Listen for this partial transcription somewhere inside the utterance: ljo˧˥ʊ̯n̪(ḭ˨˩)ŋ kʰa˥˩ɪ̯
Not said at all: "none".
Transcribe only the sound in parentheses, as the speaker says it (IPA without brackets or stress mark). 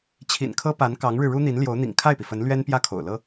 ḭ˨˩